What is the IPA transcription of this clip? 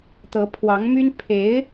t̪ɤ˧˥pʰwɑ˧˥ŋmy˥n pʰe˧˥ɪ̯

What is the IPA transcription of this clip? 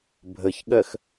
bʱəçɠɜx

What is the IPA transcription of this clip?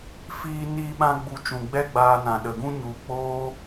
fiː˧ niː˧ɓã˧ɡ͡bu˨ t͡ʃũ˨ɡ͡bɛ˦ɡ͡baː˧nã˨ ɗə˨ɡũ˦ɲu˧ k͡poː˦

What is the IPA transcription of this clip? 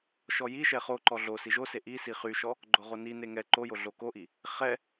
ʃɔjiʃɛ χoǃɔ ɮo siʒose ʔisi χyʃɔ | ɡ͡ǃoʁonine ŋɛ ǃo joɮokoʔi | χɛ

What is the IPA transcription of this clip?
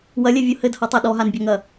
wɐlʲɛvʲo hɘdhɔtˤa ɗɔɦanbʲaŋɐ

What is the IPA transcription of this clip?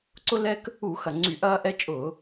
ǀʊ˦ lɛ˦k | u˧˩˧xɐ˨˩ ŋ͡ǀy˧˩˧ʔɐː˦ʔɛ˦t͡ʃʼʊː˧˩˧

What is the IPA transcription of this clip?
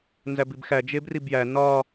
nzæbibxæ d͡ʒebribjæ nɒ

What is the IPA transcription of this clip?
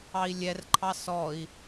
ɑi̯lʲɛrǃʰɑ sɔi̯

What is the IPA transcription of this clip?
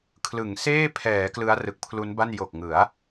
kʰlɯ˩˦ŋ seː˥˩pʰɛː˩˦ klɯ˦˥a̯rɯ˨˩k̚pʰlu˦˥nba˥˩n jo˨˩k̚ŋɯ˩˦a̯

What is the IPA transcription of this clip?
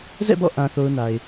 zɛ̰˦˨bɔ̰˦˨ ʔã˦θo˦ʊ̯na˨ɪ̯

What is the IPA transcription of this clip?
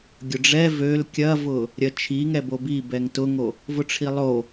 ɡʲʊɖ͡ʐɛ vøl kʲɐvʊ | ɾʲɐt͡ʃʰi ŋɛbobibɛŋ tʊŋo | vʊʈ͡ʂʰilˠo

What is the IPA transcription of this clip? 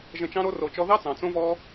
ʒə̃˧t͡ʃɑ̃˦ɾo˦ ro˧t͡ʃɔ˦ ðɑ˦t͡sɑ̃˨ t͡sõ˦vɔ˦

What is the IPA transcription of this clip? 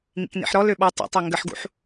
ŋḭknḭħɾɔ løɓɔ tˤə̰tˤø ŋɡəħɡṵħ

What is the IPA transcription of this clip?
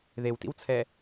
ðewtḭwt͡sʰɛ

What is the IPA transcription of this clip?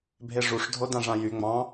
bʱeʐuʂ dʱodãʐãjy ŋ͡mɑ̃

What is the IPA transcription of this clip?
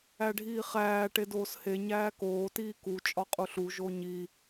æɖʱiːχæː ʈedoːshe ɲæːkoː tiːku t͡ʃʼɒqʼuɬu ʒoɲi

